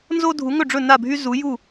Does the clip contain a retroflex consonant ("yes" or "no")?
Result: yes